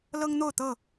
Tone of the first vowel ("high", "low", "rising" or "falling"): high